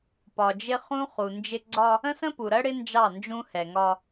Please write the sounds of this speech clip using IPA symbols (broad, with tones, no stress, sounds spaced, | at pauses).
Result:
p ɒ˨ d͡ʒ ɪ˦ χ ũ˦ χ u˨ n d͡ʒ ɪ˦ ɡ͡ǀ ɒ˦ | ə̃˦ s ə̃˦ p u˨ ɾ ɜ˦ ɽ ɪ˦ n d͡ʒ ɑ˦˨ n d͡ʒ ũ˦ h ɛ˨ ŋ ɒ˦